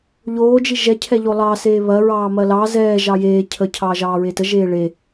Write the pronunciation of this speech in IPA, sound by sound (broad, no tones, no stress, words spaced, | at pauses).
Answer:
ʎoːd͡ʒi ʒɛcʰɛ ʎolˠɑ seːβɐɹɑː mɐlɑ zɛː ʒɑjeː cʰəcʰɑ ʒɑːɹetə ʒeːɭe